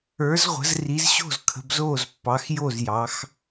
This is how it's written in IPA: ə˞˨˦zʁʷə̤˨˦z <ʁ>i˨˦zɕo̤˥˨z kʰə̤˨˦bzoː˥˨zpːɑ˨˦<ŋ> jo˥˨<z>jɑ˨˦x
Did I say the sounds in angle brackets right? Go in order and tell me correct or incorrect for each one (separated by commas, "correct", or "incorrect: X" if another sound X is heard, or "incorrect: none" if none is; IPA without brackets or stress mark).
incorrect: r, incorrect: x, correct